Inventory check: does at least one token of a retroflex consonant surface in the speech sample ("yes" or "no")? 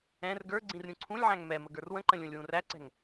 no